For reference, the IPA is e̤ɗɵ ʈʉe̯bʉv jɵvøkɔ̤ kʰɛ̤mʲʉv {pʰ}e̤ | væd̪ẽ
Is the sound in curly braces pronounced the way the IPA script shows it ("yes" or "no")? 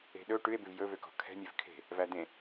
no